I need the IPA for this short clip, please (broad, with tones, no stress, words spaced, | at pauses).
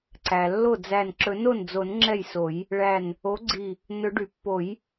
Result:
ǀæ˩lːo˥˩d͡zæ˧˩n ǁɵ˨˩˦no˥˩nd͡zo˨˩˦n ŋ͡ǁɛ˥˩jso˨˩˦j | ɭæ˧˩n | o˨˥ɡ͡ǀi˧˩ | nɵ˨˩˦ɖy˩pːo˨˩˦j